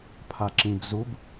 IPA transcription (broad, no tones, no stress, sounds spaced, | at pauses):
pʰ a ǁ ĩ b z u b